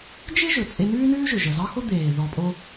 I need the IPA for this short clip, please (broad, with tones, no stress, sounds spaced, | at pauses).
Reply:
d͡ʒ ɪ˥ ʒ ɵ˩ t͡sʼ e˧ n ʉː˥ n ʉː˥ ʒ ɵ˩ ʒ ə˩ z ɑ˥ x o˥ d̪ eː˩ ð ɔ˧ pʼ o˥